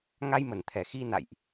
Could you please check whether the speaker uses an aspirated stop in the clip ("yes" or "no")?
yes